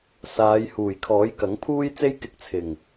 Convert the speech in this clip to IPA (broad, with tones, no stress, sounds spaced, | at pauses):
s aː˨˧ j h uː˨˩ j kʰ ɔː˨˥ j k ɐ˨˥ ŋ pʰ uː˥ j t͡s e˥ j k ɪ˧ k̚ t͡sʰ ɪ˨˩ ŋ